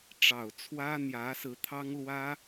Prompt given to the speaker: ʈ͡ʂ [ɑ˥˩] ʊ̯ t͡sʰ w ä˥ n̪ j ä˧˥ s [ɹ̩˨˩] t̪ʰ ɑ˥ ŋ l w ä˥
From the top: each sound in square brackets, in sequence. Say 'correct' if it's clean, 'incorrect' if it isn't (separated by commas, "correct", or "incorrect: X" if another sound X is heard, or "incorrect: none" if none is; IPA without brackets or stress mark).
incorrect: ɑ˨˩, incorrect: ɹ̩˧˥